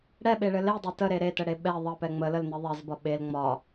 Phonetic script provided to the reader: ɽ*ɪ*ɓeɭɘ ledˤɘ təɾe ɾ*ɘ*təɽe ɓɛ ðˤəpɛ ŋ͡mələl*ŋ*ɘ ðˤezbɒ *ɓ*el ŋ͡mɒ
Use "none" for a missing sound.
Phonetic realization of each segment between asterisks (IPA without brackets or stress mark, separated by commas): ɛ, e, n, ɓ